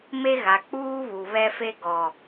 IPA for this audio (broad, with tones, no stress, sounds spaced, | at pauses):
m e˦ ɣ a˨ k͡p uː˦ β u˨ β ɛ˦ f e˦ ɡ ɔ˨